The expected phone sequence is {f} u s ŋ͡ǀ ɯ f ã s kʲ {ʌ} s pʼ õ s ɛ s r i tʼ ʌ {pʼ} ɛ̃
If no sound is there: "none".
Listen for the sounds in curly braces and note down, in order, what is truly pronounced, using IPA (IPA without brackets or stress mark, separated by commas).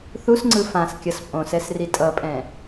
θ, ʌ, pʼ